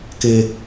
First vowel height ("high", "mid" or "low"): mid